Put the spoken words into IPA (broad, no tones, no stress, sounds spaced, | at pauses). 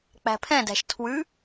k͡p æ̤ pʰ ɛ̃ d æ̤ ʃ tʰ w ʉ